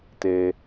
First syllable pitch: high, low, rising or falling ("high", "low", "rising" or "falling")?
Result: low